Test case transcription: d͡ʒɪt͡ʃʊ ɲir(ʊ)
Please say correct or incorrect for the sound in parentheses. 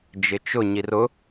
correct